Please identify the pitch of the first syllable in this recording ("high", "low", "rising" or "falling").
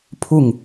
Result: falling